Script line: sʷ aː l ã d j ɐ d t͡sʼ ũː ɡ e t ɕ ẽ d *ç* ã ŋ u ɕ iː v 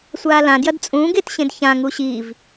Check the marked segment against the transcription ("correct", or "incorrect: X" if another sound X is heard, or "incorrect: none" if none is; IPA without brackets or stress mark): correct